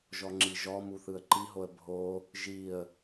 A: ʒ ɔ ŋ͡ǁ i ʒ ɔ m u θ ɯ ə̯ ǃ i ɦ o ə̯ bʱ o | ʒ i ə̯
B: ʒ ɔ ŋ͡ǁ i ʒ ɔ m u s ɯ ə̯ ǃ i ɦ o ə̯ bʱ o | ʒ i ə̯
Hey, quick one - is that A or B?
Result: A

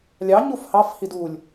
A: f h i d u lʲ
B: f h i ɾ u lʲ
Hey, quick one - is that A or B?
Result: A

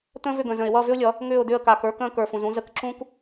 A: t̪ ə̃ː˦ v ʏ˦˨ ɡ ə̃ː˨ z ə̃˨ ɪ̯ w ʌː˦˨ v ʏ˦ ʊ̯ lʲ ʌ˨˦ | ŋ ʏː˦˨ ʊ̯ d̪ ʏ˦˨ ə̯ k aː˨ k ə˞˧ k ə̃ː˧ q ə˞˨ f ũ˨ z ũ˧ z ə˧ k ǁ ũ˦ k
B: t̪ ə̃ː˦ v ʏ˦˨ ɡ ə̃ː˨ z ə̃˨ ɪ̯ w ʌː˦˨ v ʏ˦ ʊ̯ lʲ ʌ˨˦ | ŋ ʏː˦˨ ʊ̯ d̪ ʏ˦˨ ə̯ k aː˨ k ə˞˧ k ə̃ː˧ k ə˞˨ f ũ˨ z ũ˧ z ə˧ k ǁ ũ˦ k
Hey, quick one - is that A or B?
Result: B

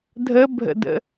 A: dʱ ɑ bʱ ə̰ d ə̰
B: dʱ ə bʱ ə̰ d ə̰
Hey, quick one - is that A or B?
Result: B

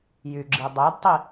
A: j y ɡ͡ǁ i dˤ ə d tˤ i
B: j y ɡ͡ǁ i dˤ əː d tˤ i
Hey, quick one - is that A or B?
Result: B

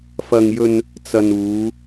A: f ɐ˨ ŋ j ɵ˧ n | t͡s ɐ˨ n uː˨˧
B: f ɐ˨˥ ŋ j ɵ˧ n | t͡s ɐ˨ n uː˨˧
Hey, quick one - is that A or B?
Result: A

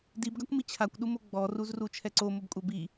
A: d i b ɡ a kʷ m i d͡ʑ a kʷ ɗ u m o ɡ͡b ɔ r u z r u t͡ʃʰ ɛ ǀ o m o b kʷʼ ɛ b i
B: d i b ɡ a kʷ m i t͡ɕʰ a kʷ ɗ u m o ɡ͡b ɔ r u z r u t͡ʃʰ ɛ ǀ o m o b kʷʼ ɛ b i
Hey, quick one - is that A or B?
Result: B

